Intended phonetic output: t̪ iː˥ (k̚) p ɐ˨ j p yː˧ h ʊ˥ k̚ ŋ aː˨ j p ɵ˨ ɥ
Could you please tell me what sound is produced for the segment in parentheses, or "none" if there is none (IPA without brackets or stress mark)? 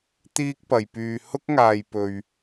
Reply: k̚